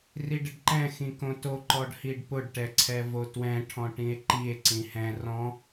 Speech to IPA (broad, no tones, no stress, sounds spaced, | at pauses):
r i ɖ ɪ ɖ ǃ ɛ̃ x ĩ k õ t o ǃ ɔ ɖ h i ɖ p ʊ ɖ ʈ ɛ ǀʰ ɛ v o t w ɛ̃ ʈʰ ɔ̃ ʈ ĩ e̯ ǃ i e̯ ǀ ĩ h ɛ̃ r ɔ̃